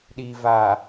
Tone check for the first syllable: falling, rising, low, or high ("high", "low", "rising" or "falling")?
low